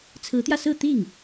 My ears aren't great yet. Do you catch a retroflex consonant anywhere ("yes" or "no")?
no